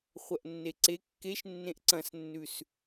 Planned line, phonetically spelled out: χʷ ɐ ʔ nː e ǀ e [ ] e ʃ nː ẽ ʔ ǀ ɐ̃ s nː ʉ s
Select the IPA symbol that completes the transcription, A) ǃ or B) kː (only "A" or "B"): B